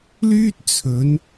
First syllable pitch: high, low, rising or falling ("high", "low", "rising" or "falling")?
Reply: high